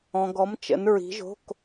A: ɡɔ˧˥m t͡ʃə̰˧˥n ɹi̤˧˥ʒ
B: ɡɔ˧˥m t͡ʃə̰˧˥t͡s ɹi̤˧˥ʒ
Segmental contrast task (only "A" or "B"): A